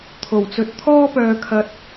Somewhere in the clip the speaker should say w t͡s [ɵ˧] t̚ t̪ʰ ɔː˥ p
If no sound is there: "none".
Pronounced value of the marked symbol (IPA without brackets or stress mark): ɵ˨˥